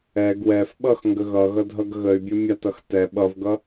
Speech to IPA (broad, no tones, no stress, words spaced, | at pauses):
ɛ ɡwɛf ɓʌxŋɡə ɣʌɣʌ dʱʌɡɣəy̯bʲə mʲatʌx tɛ ɓʌvɡʌ